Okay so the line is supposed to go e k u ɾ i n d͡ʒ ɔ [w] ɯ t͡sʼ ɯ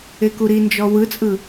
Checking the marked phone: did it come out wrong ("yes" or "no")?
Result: no